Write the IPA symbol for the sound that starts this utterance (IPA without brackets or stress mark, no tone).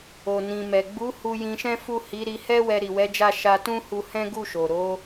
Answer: o